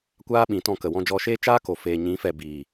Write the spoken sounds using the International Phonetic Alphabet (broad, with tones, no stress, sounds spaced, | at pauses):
kʷ aː˦ ɓ ĩ˨˦ t ɔ̃˧ k ə˨ w ɔ̃˧ d͡ʒ ɔ˧ ʃ eː˦ t͡ʃ aː˦ k o˨ f eː˨ ɲ ĩ˨˦ f ɛ˨ b iː˨